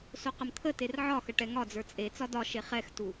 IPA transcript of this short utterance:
s o q ə m t̪ʰ ə t e r ʕ ɒ x ə ʈ ɛ ŋ ɒ d͡z ə˞ t͡sʼ e t͡s ɒ d ɒ ʃ e χ ɛ x t u

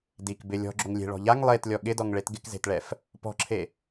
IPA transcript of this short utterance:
d i k b ɪ lʲ ɔ̤ ɡ͡ǁ o ŋ lʲ e̤ ɭ ɔ̤ ʎ a ŋ lˠ e t lʲ ɔ ɠ ɪ d ɔ ŋ ɭ e t ɡ ɪ k z e̤ t ɭ ɛ f | p ɔ̤ ǁʰ e

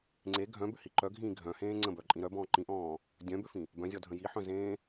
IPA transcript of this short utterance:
ŋ͡ǀ e ɡʱ œ̃ b ʏ h i ǃ œ ɡʱ ĩː ɡʱ œ̃ h ẽː ŋ͡ǀ ə̃ b œ ǃʼ ĩ ɾ œ b ɔ̃ː ǃ ĩ ʔ ɔ̃ː | dʲ œ̃ b ʏ f ĩ | b œ̃ zʲ ɔ dʱ ə̃ j i ħ œ̃ z ẽː

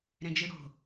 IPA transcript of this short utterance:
ɾ ɛ̃ d͡ʒ ɯ ɽ o̤

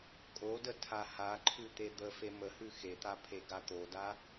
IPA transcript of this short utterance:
kʼ o d ə tʰ a h a ǃʰ ʉ t̪ e d̪ ə f e m ə h ʉ x e t̪ a pʰ e ɡ a t̪ o d a

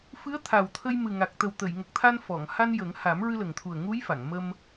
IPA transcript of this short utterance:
f ɨ˧˥ ə̯ t̪ʰ a˨˩ w t̪ʰ ə˧ j m ɨ˨˩ ŋ a˨˩ k̚ t̪ ə˨˩ w t̪ ə˨˩˨ j ŋ ə˨˩ k̚ t̪ʰ a˧ n f ɔ˨˩˨ ŋ h a˧ n j ə˨˩˦ ŋ h a˨˩˦ m ɹ ɨ˧ l ə˨˩ ŋ t̪ʰ u˨˩ ə̯ ŋ u˧˥ j f a˨˩˨ ŋ m ə˧ m

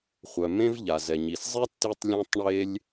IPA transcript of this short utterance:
χʷ œ˩ m ẽ˥ v ʎ a˩ z ɛ˩ ɲ i˩ s zˤ e˥ tː i˥ tˤ lʲ œ̃˥ tˤ ɳ e˥ lʲ

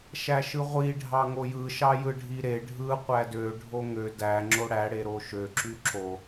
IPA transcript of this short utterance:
ʃ æ ʃ ɯ ʁʷ i ɖʱ ɑ ŋ o j ɯ ʃ ɑ j ɯ ɖʱ i ɾ e ɖʱ ɯ qʷ æ d ø ɖʱ o ŋ ø d æ ŋ͡ǁ o ɽ æ ɽ e ɾ o ʃ ø ǁ y ǁ o

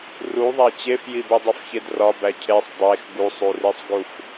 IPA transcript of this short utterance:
r u ðˤ æ t͡ɕ e f j i b i dˤ u f ç e d r ɒ b æ cʰ e sˤ dˤ e x ɡ u sˤ u r i sˤ ɡ u f

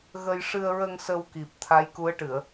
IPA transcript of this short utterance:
ɣ ə˧ j ʂ ɨ˧ ə̯ ɹ ə˧ ŋ s ə˧ w k i˨˩ p̚ t̪ʰ a˧˥ j k u˧˥ ə̯ ʈ ɨ˨˩˨ ə̯

